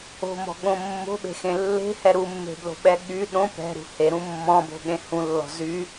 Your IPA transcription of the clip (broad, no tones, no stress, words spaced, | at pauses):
o̤mɔ̤ɠõ mːo̤ɓe̤xẽ lːe̤hɛ ɾumːe̤blo̤ɓɛ ɠy ɗõ pɛ̤ɾṳ heɾũ mːɔ̃bo̤ɠẽ hũlːɔ̤ zy